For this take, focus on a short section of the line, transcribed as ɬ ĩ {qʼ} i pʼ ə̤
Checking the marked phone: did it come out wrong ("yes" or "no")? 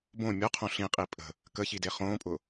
no